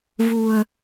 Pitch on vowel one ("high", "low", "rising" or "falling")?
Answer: low